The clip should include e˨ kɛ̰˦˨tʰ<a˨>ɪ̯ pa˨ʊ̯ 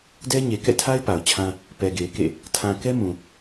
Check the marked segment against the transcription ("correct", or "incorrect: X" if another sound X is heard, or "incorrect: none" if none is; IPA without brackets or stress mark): incorrect: a˦